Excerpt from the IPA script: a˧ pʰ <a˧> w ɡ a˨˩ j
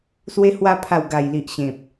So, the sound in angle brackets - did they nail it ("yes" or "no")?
no